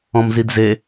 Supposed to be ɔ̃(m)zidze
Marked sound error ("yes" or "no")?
no